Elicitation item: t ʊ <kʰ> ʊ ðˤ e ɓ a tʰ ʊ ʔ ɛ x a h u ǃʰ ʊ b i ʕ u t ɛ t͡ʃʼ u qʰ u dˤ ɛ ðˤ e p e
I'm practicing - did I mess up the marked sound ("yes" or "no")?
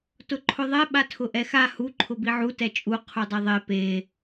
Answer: yes